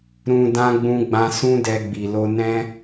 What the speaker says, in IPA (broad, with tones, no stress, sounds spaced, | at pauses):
ɾ ũ˧ d ã˦ ɡ͡b ũ˦ ɡ͡b ã˦ s ũ˦ d ɛ˧ ɡ͡b i˨ l o˧ n ɛ̃˦